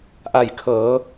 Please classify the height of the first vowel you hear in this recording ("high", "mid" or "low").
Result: low